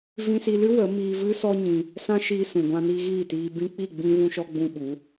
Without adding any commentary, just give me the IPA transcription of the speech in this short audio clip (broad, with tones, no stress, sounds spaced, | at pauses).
v ĩ˧ s i˧ l ɨ˦ w ə˨˦ m iː˧ v ɨ˦ s ɔ˦ ɲ ĩ˧ | s ã˦ ʃ iː˧ s ũ˨ ɡʷ ã˧ n i˧ ɣ iː˦˨ t iː˧ b ĩ˧ k͡p i˦˨ ɡ͡b ĩ˧ v ũ˧ ʃ ɔ˧ ɡ͡b ũ˧ ɓ u˨˦